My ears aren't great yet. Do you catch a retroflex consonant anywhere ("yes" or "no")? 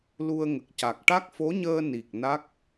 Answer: yes